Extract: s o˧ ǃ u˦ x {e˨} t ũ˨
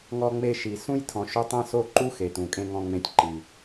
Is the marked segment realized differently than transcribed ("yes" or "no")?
no